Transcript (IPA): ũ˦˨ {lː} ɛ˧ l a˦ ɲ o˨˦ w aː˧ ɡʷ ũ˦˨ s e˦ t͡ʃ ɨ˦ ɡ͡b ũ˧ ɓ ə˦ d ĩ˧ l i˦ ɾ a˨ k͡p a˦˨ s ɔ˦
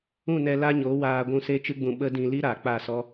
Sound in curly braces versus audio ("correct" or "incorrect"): incorrect